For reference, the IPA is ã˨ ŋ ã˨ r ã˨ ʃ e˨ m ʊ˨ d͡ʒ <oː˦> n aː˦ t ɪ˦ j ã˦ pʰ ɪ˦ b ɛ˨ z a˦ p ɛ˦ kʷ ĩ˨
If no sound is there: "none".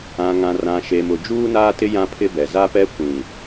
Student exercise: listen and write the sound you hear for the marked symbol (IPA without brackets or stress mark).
uː˦